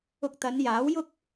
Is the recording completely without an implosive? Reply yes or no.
yes